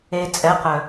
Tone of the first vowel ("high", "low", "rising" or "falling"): low